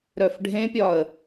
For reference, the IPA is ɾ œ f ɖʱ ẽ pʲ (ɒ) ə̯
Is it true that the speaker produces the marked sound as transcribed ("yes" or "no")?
yes